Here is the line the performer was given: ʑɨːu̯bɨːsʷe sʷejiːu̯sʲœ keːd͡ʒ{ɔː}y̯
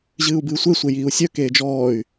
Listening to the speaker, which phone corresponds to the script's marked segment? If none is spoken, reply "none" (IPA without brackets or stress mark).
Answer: ɔː